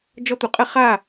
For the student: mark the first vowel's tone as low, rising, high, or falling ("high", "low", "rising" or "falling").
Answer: high